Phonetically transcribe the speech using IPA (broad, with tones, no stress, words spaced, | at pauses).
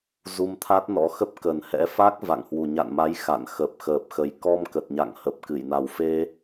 zu˧mt̪ʰa˦˥t̚nɔ̰˧˥xə˦˥p̚ kə˨˩nhɛ̰˧˥fa˦˥k̚ va̰˧˨ŋhwu˨˩ ɲa̰˧˨nma˨˦j xa̰˧˨n xə˨˩p̚xəː˨˩p̚xə˨˩j kɔ˧mkə˨˩t̚ɲa̰˧˨ŋ hə˨˩p̚kɨ˧˩jna˨˩w fe˧